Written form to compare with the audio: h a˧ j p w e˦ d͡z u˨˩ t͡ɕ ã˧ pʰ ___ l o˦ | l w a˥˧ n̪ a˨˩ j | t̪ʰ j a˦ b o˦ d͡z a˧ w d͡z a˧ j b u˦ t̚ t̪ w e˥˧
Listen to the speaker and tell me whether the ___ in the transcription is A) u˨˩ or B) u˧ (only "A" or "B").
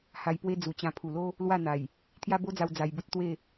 A